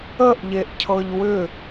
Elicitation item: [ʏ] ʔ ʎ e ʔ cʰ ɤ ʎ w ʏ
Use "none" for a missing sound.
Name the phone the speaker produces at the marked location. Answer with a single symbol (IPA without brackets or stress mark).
ə